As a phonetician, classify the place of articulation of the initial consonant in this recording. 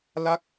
alveolar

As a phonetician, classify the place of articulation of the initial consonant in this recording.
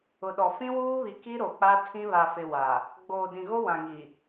alveolar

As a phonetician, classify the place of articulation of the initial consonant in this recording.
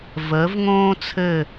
labial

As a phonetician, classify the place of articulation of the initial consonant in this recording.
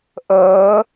glottal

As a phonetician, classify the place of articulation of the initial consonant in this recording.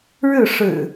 retroflex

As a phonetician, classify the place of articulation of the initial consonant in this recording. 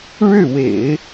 retroflex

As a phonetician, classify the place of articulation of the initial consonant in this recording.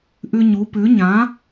glottal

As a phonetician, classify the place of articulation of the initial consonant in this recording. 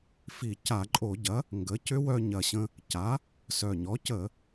labial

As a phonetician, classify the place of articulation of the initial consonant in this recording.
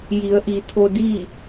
palatal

